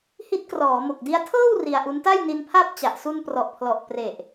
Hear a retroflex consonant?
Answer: no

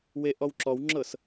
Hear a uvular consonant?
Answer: no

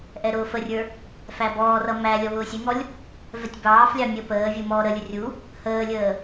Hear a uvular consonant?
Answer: no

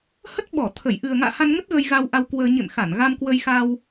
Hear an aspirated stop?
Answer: yes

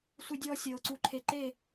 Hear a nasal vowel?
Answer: no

